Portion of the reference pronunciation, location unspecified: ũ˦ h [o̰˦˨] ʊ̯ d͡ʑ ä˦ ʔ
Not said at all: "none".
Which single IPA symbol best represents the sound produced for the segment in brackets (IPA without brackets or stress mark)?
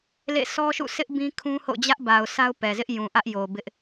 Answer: o̰˦˨